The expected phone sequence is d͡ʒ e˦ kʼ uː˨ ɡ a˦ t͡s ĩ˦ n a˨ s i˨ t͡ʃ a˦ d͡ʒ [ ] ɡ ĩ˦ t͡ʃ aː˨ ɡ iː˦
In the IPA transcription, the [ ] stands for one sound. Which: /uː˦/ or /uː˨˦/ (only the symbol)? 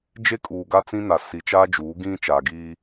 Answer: uː˨˦